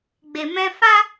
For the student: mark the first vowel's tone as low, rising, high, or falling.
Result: low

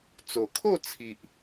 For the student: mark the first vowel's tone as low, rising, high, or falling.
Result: low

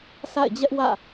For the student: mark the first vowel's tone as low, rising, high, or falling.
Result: falling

